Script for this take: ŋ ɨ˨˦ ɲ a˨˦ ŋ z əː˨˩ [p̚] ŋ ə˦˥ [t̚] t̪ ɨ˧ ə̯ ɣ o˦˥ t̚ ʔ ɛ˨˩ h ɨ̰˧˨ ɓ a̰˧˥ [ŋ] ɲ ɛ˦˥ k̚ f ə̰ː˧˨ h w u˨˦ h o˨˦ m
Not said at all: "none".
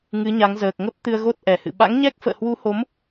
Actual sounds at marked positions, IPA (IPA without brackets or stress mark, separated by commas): k̚, p̚, ŋ